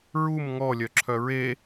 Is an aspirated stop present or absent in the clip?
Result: present